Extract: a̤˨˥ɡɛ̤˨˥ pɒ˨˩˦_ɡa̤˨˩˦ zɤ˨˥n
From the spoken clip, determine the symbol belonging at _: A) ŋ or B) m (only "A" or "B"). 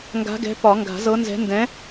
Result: A